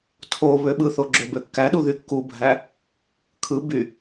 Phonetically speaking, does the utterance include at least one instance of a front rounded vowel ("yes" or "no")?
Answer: yes